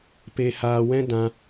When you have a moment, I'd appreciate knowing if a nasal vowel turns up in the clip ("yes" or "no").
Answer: yes